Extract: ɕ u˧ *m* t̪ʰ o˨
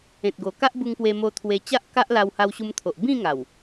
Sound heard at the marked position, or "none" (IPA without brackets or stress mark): m